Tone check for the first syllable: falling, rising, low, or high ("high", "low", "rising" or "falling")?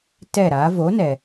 falling